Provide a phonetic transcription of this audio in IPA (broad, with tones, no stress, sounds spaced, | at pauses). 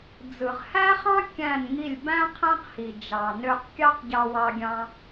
d͡z ɯ˨ ʁ h æ˦ χ ɑ̃˦ kʲ æ̃˦˨ n ŋ i˦˨ lʲ b æ̃˦ qʰ æ̃˦ q h i˨ d͡ʒ ɑ˨ n ø˧ q kʲ ɑ˦ q ɟ ɑ˧ w ɑ˧ ɡʲ ɑ̃˧